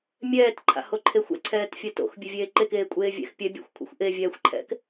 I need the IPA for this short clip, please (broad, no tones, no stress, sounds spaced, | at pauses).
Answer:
mʲ ɛː t ǃʰ a̰ h o ǃʰ e xʷ ɛ̰ ǀʰ ɛː t fʲ ɛ t o̰ x bʲ ø vʲ eː ǃ e k eː kʷʼ eː vʲ ɛ̰ x pʲ ɛ bʲ a̰ xʷ kʷʰ ḛ xʷ ʔ e vʲ ɛː xʷ ǃʰ ɛ̰ k